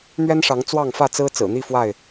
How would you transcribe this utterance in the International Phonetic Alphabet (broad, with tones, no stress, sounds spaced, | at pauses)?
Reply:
n̪ ɥ ɛ˦ n ʂ ɑ˨˦ ŋ t͡s w ɑ˥˨ ŋ f ä˥˨ t͡s ɹ̩˦ t͡s ɹ̩˨˩ n̪ i˥˨ f w a˥˨ ɪ̯